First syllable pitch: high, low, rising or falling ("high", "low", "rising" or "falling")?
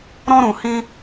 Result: high